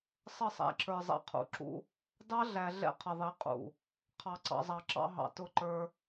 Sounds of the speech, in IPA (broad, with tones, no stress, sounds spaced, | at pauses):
sˤ ə˦˨ sˤ æ̰˨ ǁ ə˞˨ zˤ ɛ̰˨ qʰ ṵ˨ ǁ ṵ˦ | d ɑ˦ ɮ æ˨ ɮ ɛ̰˦ qʰ ə˨ ðˤ i˨˦ qʼ ṵ˨ | qʰ ɑ˨ ǀ ɑ̰˨ zˤ ɑ˨ ǁ ɑ̰˦ ɦ ɑ̰˨ t ʊ˦˨ ǃ ə˞˦